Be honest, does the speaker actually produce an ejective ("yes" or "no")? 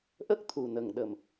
no